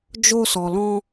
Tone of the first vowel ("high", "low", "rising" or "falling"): high